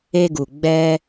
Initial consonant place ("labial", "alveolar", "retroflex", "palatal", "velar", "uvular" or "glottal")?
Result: velar